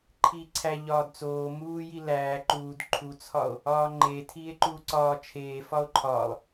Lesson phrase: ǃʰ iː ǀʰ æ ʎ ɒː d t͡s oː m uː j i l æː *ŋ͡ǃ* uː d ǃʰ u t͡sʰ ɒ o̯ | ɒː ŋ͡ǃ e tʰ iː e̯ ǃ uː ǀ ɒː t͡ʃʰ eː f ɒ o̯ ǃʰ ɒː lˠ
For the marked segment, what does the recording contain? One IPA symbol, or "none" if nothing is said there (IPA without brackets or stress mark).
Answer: ǃ